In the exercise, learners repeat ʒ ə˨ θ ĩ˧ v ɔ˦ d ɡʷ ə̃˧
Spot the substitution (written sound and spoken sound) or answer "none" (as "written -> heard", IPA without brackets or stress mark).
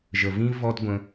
θ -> v